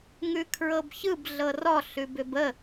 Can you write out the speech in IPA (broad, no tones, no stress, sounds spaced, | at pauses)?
ŋ ʉ kʰ ɹ ɤ b ç ɯ b ɮ ɤ r ɔ ɬ ʉ b ʏ b ə